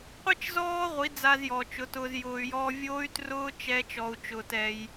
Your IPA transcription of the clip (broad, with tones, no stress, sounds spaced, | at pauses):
qʷ i˦ t͡ʃ z ɔː˦ ʁʷ i˨˦ d͡z a˧ z j ɔ˨ t͡ʃ ʊ˨˦ t ʊː˧ z j ʊː˧ y̯ j ɔː˦ vʲ oː˦ y̯ t r ʊː˦ t͡ʃ ɛ˦ t͡ʃ ɔ˧ u̯ t͡ʃ ʊː˧ t ɛ˧ j